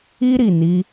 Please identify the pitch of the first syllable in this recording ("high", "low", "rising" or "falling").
high